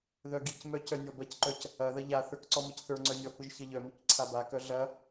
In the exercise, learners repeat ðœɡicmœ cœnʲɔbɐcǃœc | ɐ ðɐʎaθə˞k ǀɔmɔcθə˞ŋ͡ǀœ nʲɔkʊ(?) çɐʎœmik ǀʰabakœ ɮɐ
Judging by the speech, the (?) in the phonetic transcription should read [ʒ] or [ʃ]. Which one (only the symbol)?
ʒ